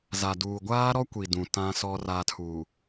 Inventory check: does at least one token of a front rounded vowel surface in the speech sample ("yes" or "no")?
no